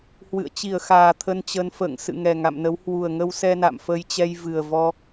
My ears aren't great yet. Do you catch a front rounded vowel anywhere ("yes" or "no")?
no